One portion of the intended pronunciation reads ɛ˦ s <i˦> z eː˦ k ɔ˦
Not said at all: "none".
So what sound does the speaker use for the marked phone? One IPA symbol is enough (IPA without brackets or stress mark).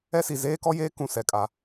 i˨